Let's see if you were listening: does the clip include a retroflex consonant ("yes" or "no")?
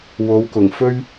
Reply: no